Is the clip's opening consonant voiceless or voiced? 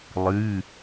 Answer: voiced